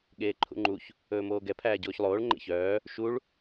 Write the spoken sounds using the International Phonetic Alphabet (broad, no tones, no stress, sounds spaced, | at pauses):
ɠ eː ǃʰ ṵ ŋ͡ǃ u ç | ɵː m oː ɡ ɛ pʰ æː ɟ oː ç lˠ oː ɭ ŋ͡ǃ ḛ ç œː | ʃ u ɭ